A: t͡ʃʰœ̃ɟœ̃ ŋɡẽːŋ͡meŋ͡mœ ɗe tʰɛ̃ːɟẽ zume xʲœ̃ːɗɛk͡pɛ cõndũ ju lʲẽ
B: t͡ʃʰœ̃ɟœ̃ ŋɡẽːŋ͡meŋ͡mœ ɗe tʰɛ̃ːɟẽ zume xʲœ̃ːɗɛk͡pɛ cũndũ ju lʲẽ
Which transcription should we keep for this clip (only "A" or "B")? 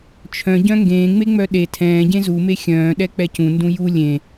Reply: B